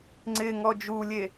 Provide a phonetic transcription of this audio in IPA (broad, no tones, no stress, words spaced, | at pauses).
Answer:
ŋ͡ǀɪŋɔ d͡ʒulʲe